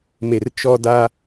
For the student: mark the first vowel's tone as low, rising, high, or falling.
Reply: low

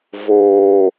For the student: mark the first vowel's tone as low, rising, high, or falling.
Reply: low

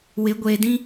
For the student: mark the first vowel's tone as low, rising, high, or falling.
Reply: rising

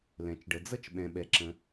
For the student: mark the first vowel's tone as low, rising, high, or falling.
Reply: low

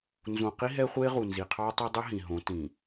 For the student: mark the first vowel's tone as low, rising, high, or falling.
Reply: low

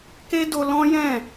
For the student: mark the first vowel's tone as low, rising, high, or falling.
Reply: high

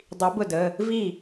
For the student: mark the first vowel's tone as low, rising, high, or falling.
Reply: rising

